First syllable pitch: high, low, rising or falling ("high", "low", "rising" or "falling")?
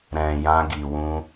low